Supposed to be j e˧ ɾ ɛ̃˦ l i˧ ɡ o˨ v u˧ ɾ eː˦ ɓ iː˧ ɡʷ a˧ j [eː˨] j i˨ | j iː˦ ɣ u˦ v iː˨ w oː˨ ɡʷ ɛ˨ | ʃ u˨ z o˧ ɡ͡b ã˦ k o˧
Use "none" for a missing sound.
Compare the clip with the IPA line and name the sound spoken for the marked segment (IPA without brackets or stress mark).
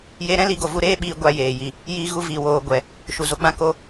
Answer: eː˨